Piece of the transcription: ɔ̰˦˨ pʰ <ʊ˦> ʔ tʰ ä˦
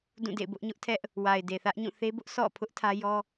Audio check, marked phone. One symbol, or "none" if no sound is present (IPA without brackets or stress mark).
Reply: ʊ˦